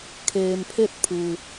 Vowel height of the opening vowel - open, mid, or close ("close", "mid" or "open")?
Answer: mid